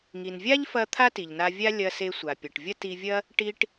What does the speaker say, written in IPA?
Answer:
ŋ i˩ n vʲ a˥ ʎ f ɐ˧ t̪ʰ a˥ t i˩ ʎ n a˧ vʲ a˥ lʲ ɐ˧ s e˧ sʷ a˩ pʲ ɐ˩ ʈ vʲ ɐ˥ t i˧ vʲ ɐ˥ | ʈ i˧ ʈ

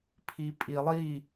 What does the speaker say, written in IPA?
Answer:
pʰ i pʼ i lˠ i

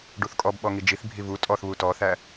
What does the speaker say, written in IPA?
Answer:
ɖ u θ kʼ ɔ b ɓ ɔ ŋ i d͡ʒ i θ bʱ i v u tʼ ɔ θ β u t ɔ θ æ

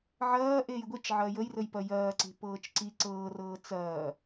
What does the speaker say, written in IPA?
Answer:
ʕ ɐː ʔ eː j ɡʷ e t͡ʃ ʕ ɐː j ə j r ə j p ɐ j ɐː ǀ e̤ p ɤː t͡ʃ ǀ i ǀ ɤː r ɤː t͡s ɐː

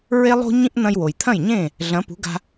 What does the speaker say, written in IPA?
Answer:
ɹ e˥ lˠ o̤˥ ɲ ĩ˥ ʔ n̪ ɐ̃˧ j w o˩ j t̪ʰ ɐ̃˥˩ j ɲ ẽ˥˩ | ɮ ɐ̃˩˥ p ṳ˩˥ ɡ a̤˧

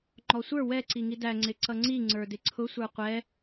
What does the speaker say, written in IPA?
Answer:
ŋ͡ǃ ɔ sʷ ə˞ w ɛ ǀ i ŋ i d æ ŋ͡ǀ ɪ ǀ ʌ ŋ͡ǀ i ŋ͡ǀ ə˞ d ɪ ǀʰ ʊ sʷ ə˞ qʷ ɛ

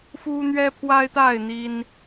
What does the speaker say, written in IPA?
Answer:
f u˦ n̪ ɥ ɛ˦ pʰ w a˦ ɪ̯ t̪ a˥˨ ɪ̯ n̪ i˦ n

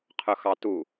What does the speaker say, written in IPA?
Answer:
qʰ ʊ x ɑ t u

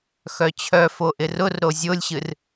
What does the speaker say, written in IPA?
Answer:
x œ t͡ɕʰ œ f o ʔ ɪ r ʊ r ɾ o zʲ o lʲ ɕ ɨ r

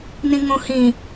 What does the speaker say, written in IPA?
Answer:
n ĩ ŋ õ h ĩ

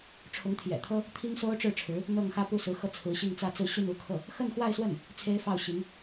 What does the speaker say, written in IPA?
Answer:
ʈ͡ʂʰ ʊ˧˥ ŋ t̪ʰ j ɛ̰˨˩ t̪ʰ ɤ˥ | t̪ʰ i˥ ŋ s o˥ ʊ̯ ʈ͡ʂ ɻ̩˥˩ ʈ͡ʂʰ ɻ̩˧˥ | n̪ ɤ˥˧ ŋ x ä˥˧ p u˥˩ s ɹ̩˧˥ x ɤ˧ t͡sʰ ɹ̩˧˥ ɕ i˥˧ ŋ t͡s ä˥˧ t͡s ɹ̩˥˧ ɕ y˥˧ n u˥˧ kʰ ɤ˥˩ | x ə˥˧ n x w a˥˧ ɪ̯ s w ə˥˩ n | t͡sʰ e˥ ɪ̯ f ɑ˥˩ ʊ̯ ɕ i˧˥ ŋ

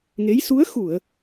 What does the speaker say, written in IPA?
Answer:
ŋ e˧˥ j s u˧˥ ə̯ x u˨˩˨ ə̯

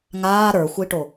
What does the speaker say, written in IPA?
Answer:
ŋ aː ɾ ə˞ xʷ i ʈ o

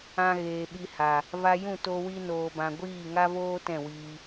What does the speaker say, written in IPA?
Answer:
ã˧ ɣ eː˨ ɓ i˧ h a˨ | v a˧ j ũ˦˨ t o˧ w i˧ n oː˨ b ã˨ ɡʷ iː˦˨ ŋ a˦ v oː˦ t ɛ̃˦˨ w iː˧

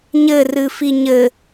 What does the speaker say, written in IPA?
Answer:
ɲ ɘ r ɨ f i ɲ ɘ

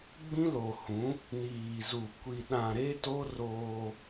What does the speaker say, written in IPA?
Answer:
ɡ͡b ĩ˦ l o˨ h ũ˨˦ | n iː˨ z u˨ kʷ i˨ ɗ ã˨ ɾ e˦ t o˦ r oː˦

